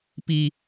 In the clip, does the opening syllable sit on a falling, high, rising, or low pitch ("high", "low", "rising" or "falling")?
low